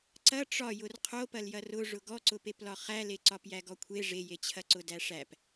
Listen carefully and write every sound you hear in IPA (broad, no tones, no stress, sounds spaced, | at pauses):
ǀ ɐ ʈ͡ʂ ɒ j ʊ r qʰ o p ɐ l j ɐ r ʊ ʐ ʊ ɡ ɔ ǀ ʊ p e p l ɒ χ æ l e ǀ ɒ p j æ ɡ ɔ kʷʰ e ʐ e j e t͡ɕʰ ɐ ǀ ʊ d æ ʂ æ p